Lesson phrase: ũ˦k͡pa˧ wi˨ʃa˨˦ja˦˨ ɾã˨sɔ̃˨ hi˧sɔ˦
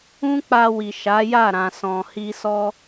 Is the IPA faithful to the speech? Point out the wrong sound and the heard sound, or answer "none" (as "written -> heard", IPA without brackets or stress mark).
none